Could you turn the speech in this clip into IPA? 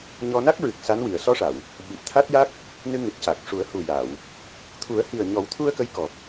ɲ ɔ˧ n a˦˥ k̚ ɹ ɨ˨˩ k̚ s a˧˥ n w i˨˩˨ ə̯ s ɔ˧ ʂ a˨˩˨ w | ɓ i˨˩ p̚ t̪ʰ a˦˥ t̚ j a˦˥ k̚ | n ɨ˧ ŋ ɨ˨˩ t̚ c a˨˩ k̚ ʂ u˨˩˦ ə̯ h u˨˩ j a˨˩˨ w | t̪ʰ u˨˩˦ ə̯ h i˨˩ ə̯ ɲ ɔ˨˩˦ w t̪ʰ u˧ ə̯ k ə˧˥ j k ɔ˨˩ p̚

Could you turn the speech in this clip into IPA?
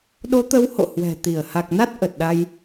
ɗ o˨˦ t̪ ə˨˦ w h o̰˧˨ h w ɛ̤˨˩ t̪ i˧˩ ə̯ h a˨˩ k̚ n a˦˥ t̚ ʔ ə˨˩ t̚ ɗ a˧ j

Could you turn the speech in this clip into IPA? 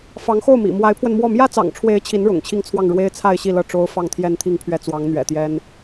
f ɑ˧˥ ŋ x o˥˩ ʊ̯ m ḭ˨˩ m w a˧˥ ɪ̯ pʰ w ə˧ n m w ɔ˥˩ m j ä˥ t͡s ɑ̰˨˩ ŋ ʈ͡ʂʰ w e˧˥ ɪ̯ t͡ɕʰ i˧˥ n ɻ ʊ̰˨˩ ŋ t͡ɕʰ i˥˧ ŋ t͡sʰ w ɑ˥˩ ŋ ɻ w e˥ ɪ̯ t͡sʰ a˥˧ ɪ̯ ɕ i˥˧ l ɤ˥˩ ʈ͡ʂ o˥ ʊ̯ f ɑ˥˧ ŋ t̪ʰ j ɛ˥˧ n t̪ʰ i˥˧ ŋ pʰ ɥ ɛ˥˩ t͡s w ɑ˧˥ ŋ n̪ ɥ ɛ̰˨˩ t̪ j ɛ˥ n

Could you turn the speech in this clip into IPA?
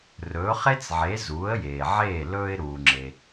r ɵː˩˥ χ e˥ t͡s ʕ e˩˥ z uː˩˥ ə̯ j eː˩ ʕ eː˥˩ l ɵː˧ ɪ̯ ɾ uː˩ ŋ͡ǁ e˩

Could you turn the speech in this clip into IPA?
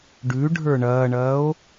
ɖ ʉ ɖʱ ə˞ ɳ ɐː ɳ ɐː o̯

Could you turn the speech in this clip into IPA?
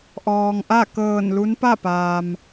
ʔ ɔː˩ ŋ ʔ a˥˨ k ɤː˧˩ n l u˧˥ n p a˥˨ p aː˩ m

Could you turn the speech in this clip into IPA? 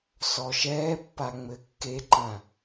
s ɔ ʃ ɛː pː a ŋ͡m ɘ kː e ǃ ã

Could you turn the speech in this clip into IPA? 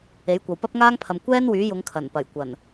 e˨˥ j kʷ ɐ˨ w p ɐ˥ p̚ ŋ aː˥ ŋ pʰ ɐ˨ m kʷ ɛː˥ n w yː˨˥ j ʊ˨˧ ŋ kʰ ɐ˨˩ n p ɐ˨˩ j kʷ ɐ˨˩ n

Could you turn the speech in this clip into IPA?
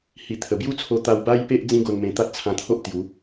h i˨˩ t̪ʰ ə˨˩ b j u˦ t͡sʰ o˧ t̪ a˧ w b a˦ j p e˦ ʔ d͡z ĩ˦ ɡ o˧ n m ẽ˧ t̪ a˦ t̚ t͡sʰ ã˧ t̪ʰ o˦ ʔ t̪ j u˨˦

